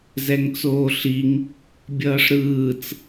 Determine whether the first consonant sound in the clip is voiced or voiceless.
voiced